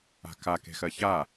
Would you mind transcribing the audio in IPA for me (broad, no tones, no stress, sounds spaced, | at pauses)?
a̤ k a k e̤ x ɜ ç a